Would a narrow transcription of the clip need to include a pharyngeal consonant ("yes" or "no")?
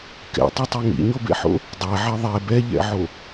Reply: yes